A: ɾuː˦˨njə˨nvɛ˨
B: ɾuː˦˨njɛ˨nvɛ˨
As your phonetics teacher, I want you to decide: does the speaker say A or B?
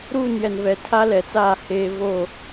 B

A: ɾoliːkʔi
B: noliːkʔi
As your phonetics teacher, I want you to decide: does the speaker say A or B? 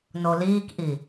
B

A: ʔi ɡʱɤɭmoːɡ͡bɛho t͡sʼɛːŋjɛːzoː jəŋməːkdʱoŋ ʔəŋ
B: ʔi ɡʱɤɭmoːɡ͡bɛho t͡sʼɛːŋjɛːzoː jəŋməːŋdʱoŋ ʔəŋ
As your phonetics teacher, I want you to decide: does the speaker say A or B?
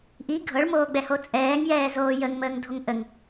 B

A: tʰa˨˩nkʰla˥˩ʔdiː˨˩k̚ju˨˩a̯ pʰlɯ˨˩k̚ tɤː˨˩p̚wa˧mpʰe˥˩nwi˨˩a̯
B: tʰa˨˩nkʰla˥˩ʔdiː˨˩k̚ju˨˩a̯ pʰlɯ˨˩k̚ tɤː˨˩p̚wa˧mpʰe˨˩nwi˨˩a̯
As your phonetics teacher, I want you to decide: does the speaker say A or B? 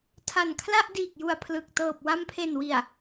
B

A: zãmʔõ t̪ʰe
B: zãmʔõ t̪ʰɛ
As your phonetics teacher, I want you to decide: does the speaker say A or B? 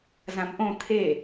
A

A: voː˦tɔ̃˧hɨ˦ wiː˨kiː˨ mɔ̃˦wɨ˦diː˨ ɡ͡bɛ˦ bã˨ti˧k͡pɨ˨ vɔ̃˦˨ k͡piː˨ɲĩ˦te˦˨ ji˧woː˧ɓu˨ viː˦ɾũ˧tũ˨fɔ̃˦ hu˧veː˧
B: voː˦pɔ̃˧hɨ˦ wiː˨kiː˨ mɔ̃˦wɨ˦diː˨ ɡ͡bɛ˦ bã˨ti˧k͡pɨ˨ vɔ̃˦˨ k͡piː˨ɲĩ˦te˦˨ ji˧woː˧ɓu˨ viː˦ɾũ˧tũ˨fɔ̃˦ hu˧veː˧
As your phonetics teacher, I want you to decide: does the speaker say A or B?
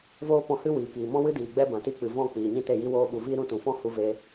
B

